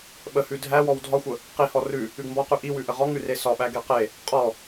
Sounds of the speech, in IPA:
ɓ ə h ʉ dʱ æ w ɔ w dʱ ɒ xʷ ə | q i h ɔ r ʉ | ʉ ɡ m b ɔ q ʉ ʔ i w ʉ ʔ ə ʁ ɔ ŋ ʉ r e s ɒ ɓ æ ɡ e q e | qʼ ɔ

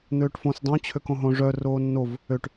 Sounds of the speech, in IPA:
n̪ øː ʈ f õ s dˤ œ̃ t͡ɕʰ ø k õ ɦ õ ʐ œ r oː nː o v | ø ʈ

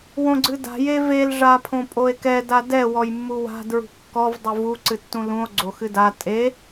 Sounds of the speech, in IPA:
w õ ɡ͡ǀ ɨ d a̤ j e v e l ʐ a pʰ õ pʼ o e̯ k ɛ d a d ɛ w ɔ j mː u w a̤ d ɹ ṳ kː ɔ v dˤ o v u ǀ ɨ tː ũ l ũ o̯ ɡ͡ǀ o x ɨ d a tʼ e

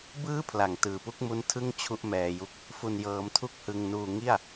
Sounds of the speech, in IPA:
b ɯː˥˩ pʰ l a˨˩ ŋ t ɯː˨˩ p u˥˩ k̚ m u˦˥ n tʰ ɯ˥˩ ŋ t͡ɕʰ u˦˥ ʔ m ɛː˧ j u˦˥ k̚ | f u˧ n j ɤː˧ m tʰ u˥˩ k̚ h ɯ˧ ŋ n uː˧ ŋ i˥˩ a̯

